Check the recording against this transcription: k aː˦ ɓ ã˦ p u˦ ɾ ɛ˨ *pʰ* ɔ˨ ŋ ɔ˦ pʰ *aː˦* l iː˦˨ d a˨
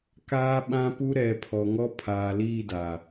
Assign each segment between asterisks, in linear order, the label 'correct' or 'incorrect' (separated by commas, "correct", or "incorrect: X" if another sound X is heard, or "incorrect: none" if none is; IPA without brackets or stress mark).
correct, incorrect: aː˨